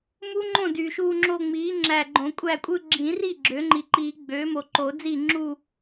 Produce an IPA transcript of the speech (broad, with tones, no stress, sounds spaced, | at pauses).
m u˦˥ ŋ͡ǃ õ˥˩ d y˨ ʃ uː˥˧ ŋ͡ǁ o˥˧ ŋ͡m iː˩˥ ŋ͡ǁ æ˨ ɡ͡ǃ õ˨˩˦ kʷʼ æ˥˩ kʷʼ ɯ˥˧ ɡ͡ǁ ĩ˨˩˦ r i˥˩ ɡ͡ǁ ø˩˥ ŋ͡ǃ i˨ ǃ iː˨˩˦ ɡ͡b øː˩˥ m o˨ ǃ o˨˩˦ d͡z iː˥˩ ŋ͡ǁ u˥˧